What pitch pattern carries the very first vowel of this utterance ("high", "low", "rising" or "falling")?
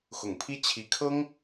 low